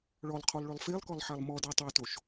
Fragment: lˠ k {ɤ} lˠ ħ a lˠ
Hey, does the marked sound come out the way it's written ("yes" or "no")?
no